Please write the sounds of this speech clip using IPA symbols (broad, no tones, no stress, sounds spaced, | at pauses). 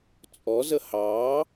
t͡sʼ ɔ z ə h ɑː